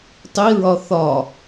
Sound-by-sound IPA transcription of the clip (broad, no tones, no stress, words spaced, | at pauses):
tˤiɹɒ θɒ